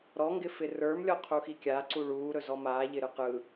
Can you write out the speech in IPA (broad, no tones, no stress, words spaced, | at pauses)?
ɾɔŋɡɪfɪ rə˞mlʲɔqʰuxi kʲaǀuɭ uːɾɵzɔ maːʎɪɾɯ qɯ